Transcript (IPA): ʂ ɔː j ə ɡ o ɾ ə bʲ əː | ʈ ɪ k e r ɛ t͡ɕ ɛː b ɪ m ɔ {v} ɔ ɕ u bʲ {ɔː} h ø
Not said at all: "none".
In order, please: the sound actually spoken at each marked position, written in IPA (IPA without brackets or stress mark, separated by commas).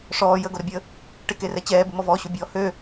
v, ɔː